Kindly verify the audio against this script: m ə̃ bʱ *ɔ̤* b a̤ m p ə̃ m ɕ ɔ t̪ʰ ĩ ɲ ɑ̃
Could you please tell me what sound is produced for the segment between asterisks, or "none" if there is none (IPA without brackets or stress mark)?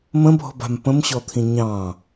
ɔ̤